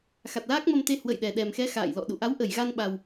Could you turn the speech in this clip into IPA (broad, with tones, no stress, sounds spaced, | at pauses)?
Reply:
x a˨˩ t̚ l aː˦˥ k̚ m ə˧ m t̪ e˧ h w ə̰˧˨ j ɗ ɛ˨˩ ɗ ɛ˨˩ m x ɛ˨˦ x a̰ː˧˨ j l ɔ̰˧˨ ɗ ṵ˧˨ ʔ a˨˦ w ʔ ə˧˩ j ɣ a˧ n ɓ a˨˩ w